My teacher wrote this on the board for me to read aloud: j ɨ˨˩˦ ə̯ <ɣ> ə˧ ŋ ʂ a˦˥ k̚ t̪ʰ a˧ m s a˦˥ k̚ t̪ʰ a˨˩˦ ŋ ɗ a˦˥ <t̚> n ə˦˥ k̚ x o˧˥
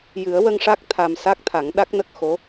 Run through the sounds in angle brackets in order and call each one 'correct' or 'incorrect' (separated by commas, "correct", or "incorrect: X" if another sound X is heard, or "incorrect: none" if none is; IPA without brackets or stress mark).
incorrect: w, incorrect: k̚